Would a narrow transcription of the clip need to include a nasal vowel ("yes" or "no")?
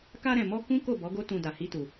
yes